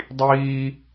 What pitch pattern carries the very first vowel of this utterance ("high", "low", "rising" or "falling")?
high